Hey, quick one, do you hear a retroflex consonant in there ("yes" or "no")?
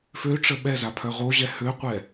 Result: yes